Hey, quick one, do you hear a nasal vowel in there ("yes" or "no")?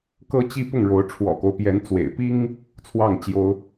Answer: no